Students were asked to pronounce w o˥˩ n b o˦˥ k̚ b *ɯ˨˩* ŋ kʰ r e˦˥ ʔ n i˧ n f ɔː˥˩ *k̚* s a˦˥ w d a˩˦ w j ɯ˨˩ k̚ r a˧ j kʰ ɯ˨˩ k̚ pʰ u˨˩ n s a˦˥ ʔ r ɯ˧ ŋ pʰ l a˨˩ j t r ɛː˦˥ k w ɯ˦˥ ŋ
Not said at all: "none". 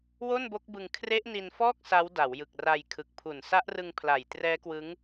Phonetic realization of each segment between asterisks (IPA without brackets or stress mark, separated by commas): ɯ˧, k̚